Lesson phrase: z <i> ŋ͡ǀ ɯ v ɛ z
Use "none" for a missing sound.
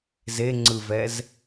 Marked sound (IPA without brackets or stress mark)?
e